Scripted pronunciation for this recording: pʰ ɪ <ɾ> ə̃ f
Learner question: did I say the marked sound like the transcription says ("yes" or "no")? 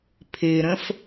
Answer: yes